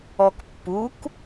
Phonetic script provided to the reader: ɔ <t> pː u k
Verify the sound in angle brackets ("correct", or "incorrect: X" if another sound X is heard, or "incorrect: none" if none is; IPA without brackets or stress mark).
incorrect: k